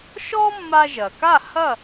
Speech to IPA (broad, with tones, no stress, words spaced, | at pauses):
ʃɔ˥mːa˧ ʒɐ˩ka˥˩ hɐ˥˩